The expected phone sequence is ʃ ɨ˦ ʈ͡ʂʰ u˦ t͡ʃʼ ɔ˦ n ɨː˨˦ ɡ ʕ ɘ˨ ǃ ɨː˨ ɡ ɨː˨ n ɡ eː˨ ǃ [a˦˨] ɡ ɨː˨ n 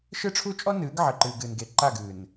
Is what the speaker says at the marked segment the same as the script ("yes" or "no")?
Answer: yes